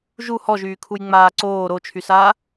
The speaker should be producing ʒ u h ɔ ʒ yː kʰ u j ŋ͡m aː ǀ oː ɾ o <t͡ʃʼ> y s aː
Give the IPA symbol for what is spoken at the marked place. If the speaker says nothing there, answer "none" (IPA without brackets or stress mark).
t͡ʃʰ